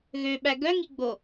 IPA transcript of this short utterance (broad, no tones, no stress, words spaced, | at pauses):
ɣøɓæ ɡœŋiɡ͡bo